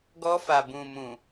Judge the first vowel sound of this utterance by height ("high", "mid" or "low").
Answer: mid